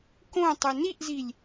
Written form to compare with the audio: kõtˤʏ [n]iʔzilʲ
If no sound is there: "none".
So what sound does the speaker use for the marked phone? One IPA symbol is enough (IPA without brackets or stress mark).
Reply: n